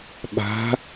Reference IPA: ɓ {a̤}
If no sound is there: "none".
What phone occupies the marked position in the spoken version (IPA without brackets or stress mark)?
a̤